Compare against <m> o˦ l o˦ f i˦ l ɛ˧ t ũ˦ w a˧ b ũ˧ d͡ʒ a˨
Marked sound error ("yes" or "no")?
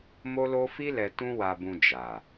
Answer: no